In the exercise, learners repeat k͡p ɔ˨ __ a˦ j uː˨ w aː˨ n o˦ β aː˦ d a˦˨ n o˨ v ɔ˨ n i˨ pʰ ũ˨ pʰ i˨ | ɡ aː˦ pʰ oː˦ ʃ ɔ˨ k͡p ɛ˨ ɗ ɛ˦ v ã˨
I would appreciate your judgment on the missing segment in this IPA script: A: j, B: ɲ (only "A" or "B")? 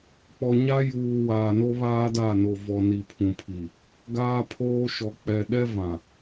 B